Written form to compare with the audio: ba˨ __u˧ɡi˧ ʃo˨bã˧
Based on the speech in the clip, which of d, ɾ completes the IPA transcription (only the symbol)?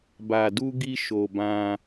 d